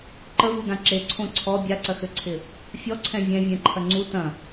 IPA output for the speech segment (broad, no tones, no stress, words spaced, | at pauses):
ǃəvuɡã ǁeǀʰõ ǀʰɔ bʲaǀɐxøǀʰɪ | fʲɔǀʰɛ̃ vʲɛ̃vʲɛ̃ǃʰɐ ŋ͡ǀu tɐ̃